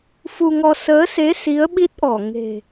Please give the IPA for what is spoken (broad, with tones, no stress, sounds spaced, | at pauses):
f u˧ ŋ ɔ˧ s əː˨˦ s e˨˦ s i˨˦ ə̯ ɓ i˦˥ t̚ ʔ ɔ˧˩ ŋ e̤˨˩